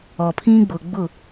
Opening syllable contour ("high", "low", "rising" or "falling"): low